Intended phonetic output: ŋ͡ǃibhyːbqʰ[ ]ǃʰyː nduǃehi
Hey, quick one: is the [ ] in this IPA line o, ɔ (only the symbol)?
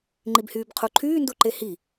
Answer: o